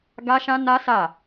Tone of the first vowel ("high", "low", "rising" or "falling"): high